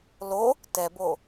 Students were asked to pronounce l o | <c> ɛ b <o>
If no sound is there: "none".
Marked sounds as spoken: t, o

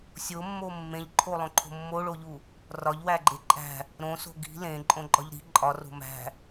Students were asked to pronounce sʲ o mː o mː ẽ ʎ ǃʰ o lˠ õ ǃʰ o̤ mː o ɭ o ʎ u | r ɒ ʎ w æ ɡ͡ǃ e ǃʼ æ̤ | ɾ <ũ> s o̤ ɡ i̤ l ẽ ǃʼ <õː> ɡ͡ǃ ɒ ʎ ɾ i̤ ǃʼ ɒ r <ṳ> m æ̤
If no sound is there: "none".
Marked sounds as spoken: õ, õ, o̤

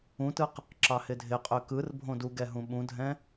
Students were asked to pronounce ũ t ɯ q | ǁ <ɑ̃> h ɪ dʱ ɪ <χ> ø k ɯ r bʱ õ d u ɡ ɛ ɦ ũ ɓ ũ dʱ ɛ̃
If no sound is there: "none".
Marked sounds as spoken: ɑ, qʼ

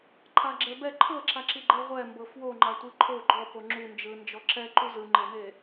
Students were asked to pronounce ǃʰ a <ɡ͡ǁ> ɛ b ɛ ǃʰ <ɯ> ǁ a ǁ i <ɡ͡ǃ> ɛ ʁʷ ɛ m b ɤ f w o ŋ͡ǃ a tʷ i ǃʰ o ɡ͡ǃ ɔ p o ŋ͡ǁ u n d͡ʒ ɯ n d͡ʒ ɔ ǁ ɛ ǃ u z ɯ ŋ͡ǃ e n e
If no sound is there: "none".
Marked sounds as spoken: ɡ͡ǁ, ɤ, ɡ͡ǃ

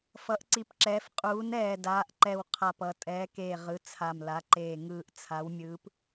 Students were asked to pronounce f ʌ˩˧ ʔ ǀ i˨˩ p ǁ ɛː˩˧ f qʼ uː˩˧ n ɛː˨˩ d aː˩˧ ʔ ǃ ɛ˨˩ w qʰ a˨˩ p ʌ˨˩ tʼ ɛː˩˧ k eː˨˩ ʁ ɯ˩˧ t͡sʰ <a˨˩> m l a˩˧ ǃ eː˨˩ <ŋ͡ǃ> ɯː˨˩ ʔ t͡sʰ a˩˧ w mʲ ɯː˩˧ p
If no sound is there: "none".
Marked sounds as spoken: a˨˩, ŋ

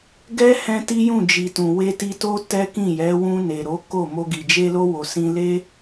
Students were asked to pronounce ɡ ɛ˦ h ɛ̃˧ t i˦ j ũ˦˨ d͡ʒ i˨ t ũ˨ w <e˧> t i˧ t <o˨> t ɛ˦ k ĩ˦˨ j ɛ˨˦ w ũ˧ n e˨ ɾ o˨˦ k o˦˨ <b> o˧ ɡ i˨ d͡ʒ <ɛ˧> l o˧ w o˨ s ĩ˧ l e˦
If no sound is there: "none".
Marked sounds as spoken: e˧, o˦, m, e˧

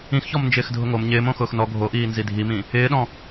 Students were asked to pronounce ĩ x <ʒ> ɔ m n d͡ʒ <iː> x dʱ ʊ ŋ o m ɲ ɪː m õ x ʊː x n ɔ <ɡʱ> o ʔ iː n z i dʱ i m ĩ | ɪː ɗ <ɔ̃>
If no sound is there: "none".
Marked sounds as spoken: ç, ɪː, ɡʱ, ɔ̃

